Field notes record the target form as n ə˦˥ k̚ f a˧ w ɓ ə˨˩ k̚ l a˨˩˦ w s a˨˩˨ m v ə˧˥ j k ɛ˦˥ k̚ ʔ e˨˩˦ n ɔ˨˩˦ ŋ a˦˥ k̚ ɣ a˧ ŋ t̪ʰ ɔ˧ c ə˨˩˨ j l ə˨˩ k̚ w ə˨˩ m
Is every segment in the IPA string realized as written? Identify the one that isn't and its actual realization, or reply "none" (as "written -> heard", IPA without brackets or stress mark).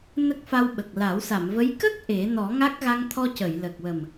ɛ˦˥ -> ə˦˥